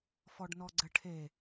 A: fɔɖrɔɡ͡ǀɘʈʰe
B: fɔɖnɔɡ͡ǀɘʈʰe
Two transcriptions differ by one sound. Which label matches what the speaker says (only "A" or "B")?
B